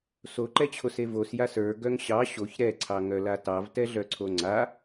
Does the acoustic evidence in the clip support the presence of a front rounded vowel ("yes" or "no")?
yes